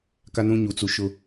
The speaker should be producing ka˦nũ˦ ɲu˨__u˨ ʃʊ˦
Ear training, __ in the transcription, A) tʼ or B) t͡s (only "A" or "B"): B